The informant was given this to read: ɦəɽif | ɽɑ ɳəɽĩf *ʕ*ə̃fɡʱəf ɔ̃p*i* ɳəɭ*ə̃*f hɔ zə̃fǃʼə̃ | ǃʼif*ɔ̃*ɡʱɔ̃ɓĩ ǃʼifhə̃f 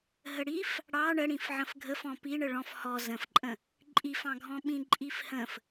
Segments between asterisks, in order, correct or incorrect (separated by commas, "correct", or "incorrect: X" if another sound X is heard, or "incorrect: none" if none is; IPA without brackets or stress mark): correct, correct, incorrect: ɔ̃, incorrect: ɑ̃